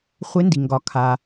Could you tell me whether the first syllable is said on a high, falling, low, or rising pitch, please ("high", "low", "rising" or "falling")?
rising